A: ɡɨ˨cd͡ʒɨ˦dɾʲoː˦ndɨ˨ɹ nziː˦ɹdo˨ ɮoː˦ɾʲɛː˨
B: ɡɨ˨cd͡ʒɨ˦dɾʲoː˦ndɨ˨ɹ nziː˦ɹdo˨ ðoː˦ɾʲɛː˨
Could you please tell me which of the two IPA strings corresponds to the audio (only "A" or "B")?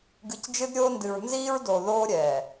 B